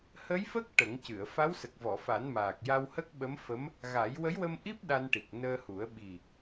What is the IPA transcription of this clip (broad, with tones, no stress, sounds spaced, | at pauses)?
h ə˧˥ j f ə˦˥ k̚ ʈ ə˨˩˦ ŋ c ɨ˨˩˨ ə̯ f a˧˥ w s ə˨˩ k̚ v ɔ˨˩˨ f a˨˩˦ n m aː˨˩ k̚ j a˧ w h ə˦˥ k̚ ɓ ə˧˥ m f ə˧˥ m | ɣ a˨˩˦ j w ə˧˥ j w ə˧ m ʔ i˦˥ p̚ ɗ a˧ n ʈ i˨˩ k̚ n əː˧ h u˨˩˦ ə̯ ɓ i˨˩